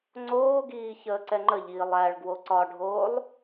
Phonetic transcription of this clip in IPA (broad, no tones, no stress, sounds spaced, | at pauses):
ŋ͡ǀ oː ɡ iː ç əː ǀ ɛ ŋ͡ǃ ə ʎ iː lˠ æ ɭ ɡ w o ǀ ɒ ɖʱ oː lˠ